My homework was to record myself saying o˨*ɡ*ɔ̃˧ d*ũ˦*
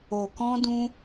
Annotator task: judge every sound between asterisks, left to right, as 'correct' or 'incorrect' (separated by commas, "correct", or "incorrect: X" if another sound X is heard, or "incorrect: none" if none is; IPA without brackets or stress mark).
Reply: incorrect: k, correct